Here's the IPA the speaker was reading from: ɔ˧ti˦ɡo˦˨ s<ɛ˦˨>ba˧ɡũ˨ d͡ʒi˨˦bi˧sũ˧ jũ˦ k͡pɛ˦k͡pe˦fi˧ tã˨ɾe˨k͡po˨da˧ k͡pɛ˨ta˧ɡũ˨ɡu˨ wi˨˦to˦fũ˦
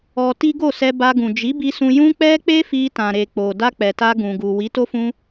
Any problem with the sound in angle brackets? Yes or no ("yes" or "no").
yes